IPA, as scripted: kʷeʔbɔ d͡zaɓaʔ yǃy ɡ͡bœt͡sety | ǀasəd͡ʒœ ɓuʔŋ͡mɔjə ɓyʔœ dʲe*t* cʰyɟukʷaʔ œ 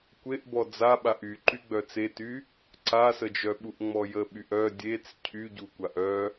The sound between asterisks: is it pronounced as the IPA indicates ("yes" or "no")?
no